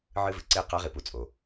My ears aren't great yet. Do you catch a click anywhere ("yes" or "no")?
yes